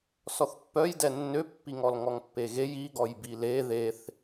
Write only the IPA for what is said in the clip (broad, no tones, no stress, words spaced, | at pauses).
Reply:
sɔθpːœjdɛ nːøpːiŋɔl ŋɔŋpːeɣej iɡɔj bile ðeθ